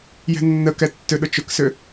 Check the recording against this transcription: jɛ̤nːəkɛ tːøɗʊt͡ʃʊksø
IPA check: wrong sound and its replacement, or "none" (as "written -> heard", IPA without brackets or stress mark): none